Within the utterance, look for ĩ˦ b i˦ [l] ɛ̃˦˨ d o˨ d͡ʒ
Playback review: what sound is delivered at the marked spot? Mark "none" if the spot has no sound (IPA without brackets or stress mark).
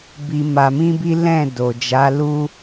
l